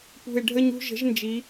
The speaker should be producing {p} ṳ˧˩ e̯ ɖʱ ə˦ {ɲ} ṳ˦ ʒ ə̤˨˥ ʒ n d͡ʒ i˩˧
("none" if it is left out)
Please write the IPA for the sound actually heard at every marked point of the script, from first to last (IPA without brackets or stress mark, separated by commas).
p, ɲ